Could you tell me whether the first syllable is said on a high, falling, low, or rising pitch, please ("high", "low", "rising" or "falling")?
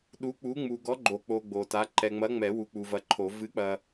rising